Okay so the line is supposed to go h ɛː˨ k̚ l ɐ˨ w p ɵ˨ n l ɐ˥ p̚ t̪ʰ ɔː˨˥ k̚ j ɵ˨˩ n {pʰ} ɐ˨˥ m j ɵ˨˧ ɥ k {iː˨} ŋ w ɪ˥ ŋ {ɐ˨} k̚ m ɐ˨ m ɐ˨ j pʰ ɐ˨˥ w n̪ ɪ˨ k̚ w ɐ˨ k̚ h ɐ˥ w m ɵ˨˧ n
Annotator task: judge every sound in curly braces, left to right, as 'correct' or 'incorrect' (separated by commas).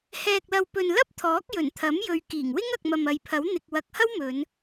incorrect, incorrect, correct